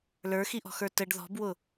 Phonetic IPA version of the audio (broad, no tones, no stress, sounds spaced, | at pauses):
l ə˞ x i ʔ ɔ̤ x ə˞ t ə ɖ ð ɔ̤ b w ʊ